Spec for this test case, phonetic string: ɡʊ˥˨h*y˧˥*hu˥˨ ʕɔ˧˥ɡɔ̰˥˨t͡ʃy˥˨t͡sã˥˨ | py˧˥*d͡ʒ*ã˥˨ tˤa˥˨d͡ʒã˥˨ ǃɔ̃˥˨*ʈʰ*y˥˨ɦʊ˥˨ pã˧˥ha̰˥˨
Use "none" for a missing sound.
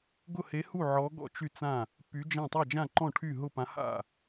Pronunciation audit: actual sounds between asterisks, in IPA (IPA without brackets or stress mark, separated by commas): e˧˥, d͡ʒ, ʈʰ